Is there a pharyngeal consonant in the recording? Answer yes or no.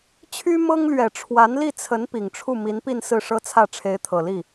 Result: no